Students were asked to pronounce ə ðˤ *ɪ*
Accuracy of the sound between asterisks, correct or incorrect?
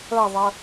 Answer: incorrect: ə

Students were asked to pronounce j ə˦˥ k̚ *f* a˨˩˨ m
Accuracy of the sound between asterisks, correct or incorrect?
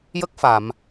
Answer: correct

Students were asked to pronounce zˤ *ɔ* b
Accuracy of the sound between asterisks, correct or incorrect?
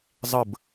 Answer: incorrect: ə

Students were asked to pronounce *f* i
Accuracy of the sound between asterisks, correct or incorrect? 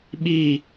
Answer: incorrect: ɓ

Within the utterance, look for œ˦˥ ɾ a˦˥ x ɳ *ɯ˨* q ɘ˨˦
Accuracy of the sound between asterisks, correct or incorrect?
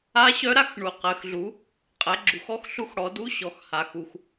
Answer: incorrect: u˨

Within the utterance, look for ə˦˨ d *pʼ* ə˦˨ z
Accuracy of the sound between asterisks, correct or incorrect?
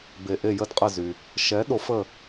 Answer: incorrect: qʼ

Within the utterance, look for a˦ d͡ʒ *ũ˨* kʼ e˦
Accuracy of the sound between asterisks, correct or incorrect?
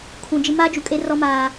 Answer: incorrect: u˨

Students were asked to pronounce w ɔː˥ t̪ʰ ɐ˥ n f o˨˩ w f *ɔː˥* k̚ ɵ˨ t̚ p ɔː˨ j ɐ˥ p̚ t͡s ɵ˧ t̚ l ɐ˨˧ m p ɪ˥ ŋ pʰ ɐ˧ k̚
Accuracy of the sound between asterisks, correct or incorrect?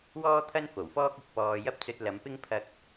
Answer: correct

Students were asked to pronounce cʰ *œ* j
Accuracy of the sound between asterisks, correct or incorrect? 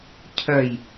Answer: correct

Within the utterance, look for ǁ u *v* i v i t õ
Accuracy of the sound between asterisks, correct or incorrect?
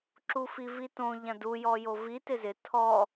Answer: incorrect: f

